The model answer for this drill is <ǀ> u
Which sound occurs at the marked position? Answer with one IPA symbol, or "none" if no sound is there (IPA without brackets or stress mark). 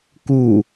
k